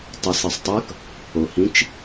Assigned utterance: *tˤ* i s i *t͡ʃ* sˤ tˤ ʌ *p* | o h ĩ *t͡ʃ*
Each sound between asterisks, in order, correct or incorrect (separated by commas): correct, incorrect, incorrect, correct